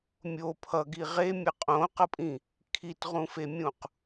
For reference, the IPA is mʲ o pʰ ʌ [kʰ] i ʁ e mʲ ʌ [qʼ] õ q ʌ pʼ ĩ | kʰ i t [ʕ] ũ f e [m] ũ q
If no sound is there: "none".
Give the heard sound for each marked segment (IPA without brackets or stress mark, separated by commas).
ɡ, qʼ, ʁ, mʲ